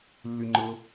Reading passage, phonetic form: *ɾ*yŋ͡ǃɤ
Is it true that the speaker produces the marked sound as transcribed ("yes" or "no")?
no